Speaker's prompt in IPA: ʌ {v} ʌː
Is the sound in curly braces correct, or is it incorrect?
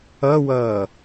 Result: incorrect